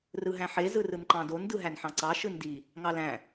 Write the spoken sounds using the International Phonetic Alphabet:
rɯɦæ̃ħe zɯrɯnǃɑ̃don dɯɦænħɑ̃ǀɑ ʃɯndi | ŋɑlæ̃

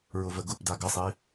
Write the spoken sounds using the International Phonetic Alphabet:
ɹʊvəɡʊpda ɡəsˤi

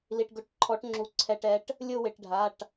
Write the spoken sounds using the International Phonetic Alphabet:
li˩ʈɡʊ˩˧ʈǃʰɔ˩˧ʈŋ͡ǁu˩ ǀʰɛ˩ʈɛ˩˧ʈ | lʲʊ˦˨wɪ˩ʈɖʱa˩˧˩ʈ

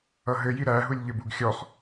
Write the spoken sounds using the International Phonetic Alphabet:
ʌɦɘji ɾæɦulʲʎɘb uɡxʲɔχ

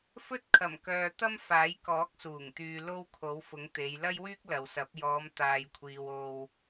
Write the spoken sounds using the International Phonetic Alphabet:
fɵ˥t̚kʰɐ˨˩mkœː˨t̪ɐ˥m faː˨˥jkɔː˨˥k̚suː˨˩ŋ t̪yː˨lo˧w kʰo˨˥wfʊ˨˥ŋt̪e˨˧j lɐ˥jwyː˥k̚lɐ˨wsɐ˨˥p̚ jɔː˨˧mt̪aː˨jkʷʰiː˨w o˧w

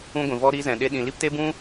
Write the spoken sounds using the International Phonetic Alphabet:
ũ˦ɡʷĩ˧vɔ˦ ɾi˦zɛ̃˧ɗe˦ ɗĩ˧ li˦pte˦bũ˦

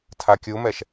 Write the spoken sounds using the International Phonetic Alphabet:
tʰakʲumɛʃ

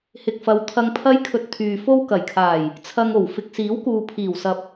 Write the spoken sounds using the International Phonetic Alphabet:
hɪ˨k̚fɐ˨˧w t̪ʰɐ˧ŋpʰɐ˥jkʰɵ˧t̚ t̪ʰyː˨fo˥w kɐ˨˩jkʰaː˨˩j | t͡sʰɐ˧ŋo˨˩w fɪ˨k̚siː˨˥wkuː˨ pʰiː˨˩wsɐ˨p̚

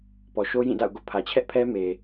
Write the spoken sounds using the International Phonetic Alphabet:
pɔ˨ʃo˦jĩ˦˨da̰˦˨ʊ̯ ɡo̰˦˨pʰä˨t͡ɕʰɛ˦ʔpʰɛ˦ me˨

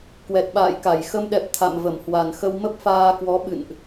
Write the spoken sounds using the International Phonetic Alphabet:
kwɛ˨˩t̚ɓa̰ː˧˨jka˧˩j xə˧mɗɛ˨˩p̚ t̪ʰa̰˧˨mvə˧˩mhwa˨˩n xə˧wmə˦˥p̚faː˧kwɔ˨˦ ɓɨ̰˧˨nʔ

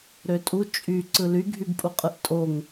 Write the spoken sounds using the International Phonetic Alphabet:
ɾøtʼu t͡ʃʼy ǀɯly ɡʱybpʼuqʼɯʔtʼoŋ

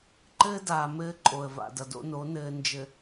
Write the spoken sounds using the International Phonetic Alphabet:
ǃɘː˦daː˨ mɘː˦ǃʼo˨ə̯va̰˨ dʌ˨do̰˦no˨˦ nɘː˨nd͡ʒɘ˨

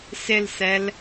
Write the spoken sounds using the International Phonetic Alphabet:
sɪlsɛl

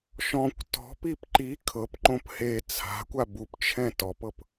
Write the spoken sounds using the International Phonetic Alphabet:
ʃɔ̃kʷ tɔ̤pip ǃi kʰɤpǃõp he t͡sʰa̤kʷa bupt͡ʃʰɛ̃ tɔpɤp

